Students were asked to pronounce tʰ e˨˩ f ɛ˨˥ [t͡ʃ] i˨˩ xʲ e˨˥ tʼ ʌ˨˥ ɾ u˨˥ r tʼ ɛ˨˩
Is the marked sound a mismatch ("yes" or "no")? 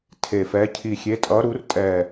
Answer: yes